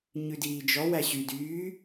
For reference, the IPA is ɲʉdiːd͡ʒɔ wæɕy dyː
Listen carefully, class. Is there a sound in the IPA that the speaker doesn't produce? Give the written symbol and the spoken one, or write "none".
none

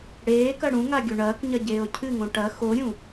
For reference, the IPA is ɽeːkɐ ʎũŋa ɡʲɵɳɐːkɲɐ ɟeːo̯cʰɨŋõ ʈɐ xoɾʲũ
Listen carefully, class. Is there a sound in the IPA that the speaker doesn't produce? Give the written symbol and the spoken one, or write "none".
ʎ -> ɽ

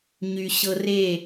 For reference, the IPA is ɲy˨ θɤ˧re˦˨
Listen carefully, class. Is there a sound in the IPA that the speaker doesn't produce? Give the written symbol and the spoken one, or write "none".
θ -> ɕ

